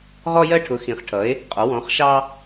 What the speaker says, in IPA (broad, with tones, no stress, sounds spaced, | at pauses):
ʁ ɔ˧ j ɜ˧ ʈʰ ʊ˩˧ x ĩ˩˧ χ ʈʰ ʌ˩˧ e̯ | qʼ ɒ˩˧ w ɔ̃˩˧ χ ʃ ɑ˧